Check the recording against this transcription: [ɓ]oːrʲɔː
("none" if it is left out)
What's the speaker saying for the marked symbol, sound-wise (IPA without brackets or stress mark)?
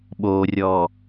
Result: ɓ